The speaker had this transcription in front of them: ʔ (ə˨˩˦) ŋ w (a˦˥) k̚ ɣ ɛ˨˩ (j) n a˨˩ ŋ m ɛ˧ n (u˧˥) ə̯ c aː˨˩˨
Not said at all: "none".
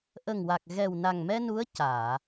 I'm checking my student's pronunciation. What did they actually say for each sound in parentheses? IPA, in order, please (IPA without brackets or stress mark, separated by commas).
ə˨˩, a˨˩, w, u˧˥